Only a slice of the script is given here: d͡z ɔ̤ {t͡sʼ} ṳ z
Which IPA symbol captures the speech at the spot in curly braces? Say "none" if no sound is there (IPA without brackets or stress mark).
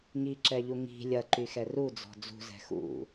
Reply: d͡z